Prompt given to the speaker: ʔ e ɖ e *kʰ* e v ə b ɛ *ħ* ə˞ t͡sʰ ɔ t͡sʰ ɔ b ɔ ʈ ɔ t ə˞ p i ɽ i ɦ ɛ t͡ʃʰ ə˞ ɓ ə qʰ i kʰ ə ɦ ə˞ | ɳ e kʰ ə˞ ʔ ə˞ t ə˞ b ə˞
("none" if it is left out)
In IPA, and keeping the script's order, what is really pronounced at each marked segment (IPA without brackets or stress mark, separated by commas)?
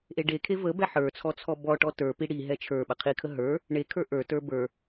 kʰ, ħ